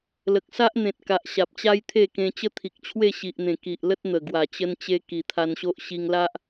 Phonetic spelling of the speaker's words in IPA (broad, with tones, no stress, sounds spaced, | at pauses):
l ə˨ k̚ s a˦ ʔ n̪ ẽ˨ t̚ k a˨ ʔ ɕ a˨ p̚ t͡ɕ a˦ j t̪ʰ e˥˧ k ẽ˧ t͡ɕ ə˦ t̪ʰ i˨ k̚ t͡ɕʰ w e˥˧ ɕ i˨ ʔ n̪ ẽ˨˩ k i˨ ʔ l ə˦ t̚ n̪ ə˨˩ ɡ w a˨˩ t͡ɕ ə˧ n t͡ɕ e˧ k i˨˩ t̪ʰ a˧ n ɕ o˦ ʔ ɕ i˧ ŋ l a˦ ʔ